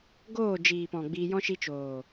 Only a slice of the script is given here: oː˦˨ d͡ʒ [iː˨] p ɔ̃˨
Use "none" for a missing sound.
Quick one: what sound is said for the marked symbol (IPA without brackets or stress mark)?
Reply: iː˨